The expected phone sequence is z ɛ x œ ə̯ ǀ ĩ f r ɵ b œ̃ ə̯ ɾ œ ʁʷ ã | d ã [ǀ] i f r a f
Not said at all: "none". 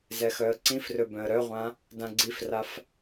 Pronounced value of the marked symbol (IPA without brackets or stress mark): ɡ͡ǀ